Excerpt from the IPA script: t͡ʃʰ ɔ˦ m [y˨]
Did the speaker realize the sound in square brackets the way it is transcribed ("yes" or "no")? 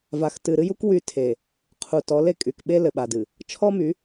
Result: no